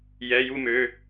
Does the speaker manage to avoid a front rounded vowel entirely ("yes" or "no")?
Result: no